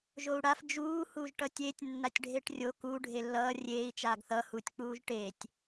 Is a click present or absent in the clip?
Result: absent